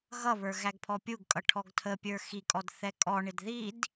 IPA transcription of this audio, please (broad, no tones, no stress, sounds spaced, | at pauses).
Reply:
ɣ ʌ β ə˞ ɣ æ ɡ pʰ ɔ pʲ u ɡ kʼ ʌ ʈʰ ɔ ɡ tʰ ə pʲ ə˞ x i kʼ ɔ d θ ɛ kʼ ɔ ɳ ɪ d ð i d